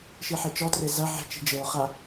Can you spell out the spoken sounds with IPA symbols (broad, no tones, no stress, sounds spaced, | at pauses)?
ʃ i ħ e t͡ʃ ɔ t r e z ɐ ʕ e̤ t͡ʃ i̤ d͡ʒ ɘ ʊ̯ χ a